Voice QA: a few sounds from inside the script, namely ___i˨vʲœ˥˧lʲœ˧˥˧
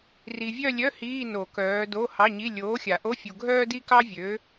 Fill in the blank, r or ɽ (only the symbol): r